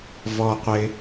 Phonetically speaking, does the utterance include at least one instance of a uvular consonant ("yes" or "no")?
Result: yes